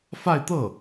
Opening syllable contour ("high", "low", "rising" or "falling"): falling